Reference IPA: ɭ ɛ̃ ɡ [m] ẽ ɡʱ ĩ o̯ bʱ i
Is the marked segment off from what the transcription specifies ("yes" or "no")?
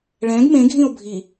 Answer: no